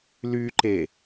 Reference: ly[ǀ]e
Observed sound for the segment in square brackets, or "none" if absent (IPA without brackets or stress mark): ǃ